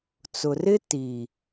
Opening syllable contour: low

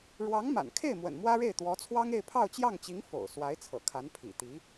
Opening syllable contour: rising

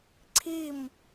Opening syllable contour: falling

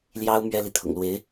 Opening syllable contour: high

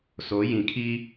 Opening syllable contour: rising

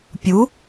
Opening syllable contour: rising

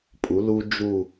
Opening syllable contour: rising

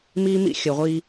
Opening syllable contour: high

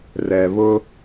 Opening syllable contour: low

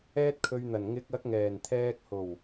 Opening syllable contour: high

